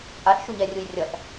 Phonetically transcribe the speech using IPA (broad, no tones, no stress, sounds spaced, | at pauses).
t͡sʼ a ɬ ʃ u ɲ ɛ rʲ u j rʲ ʌ ɬ